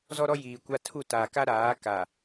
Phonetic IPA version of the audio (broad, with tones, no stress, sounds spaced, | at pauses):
z ɔ˦ ɾ ɔ˦ j iː˨ kʷ a˦ tʰ u˦˨ t aː˨ k a˦ ɾ aː˨˦ k a˨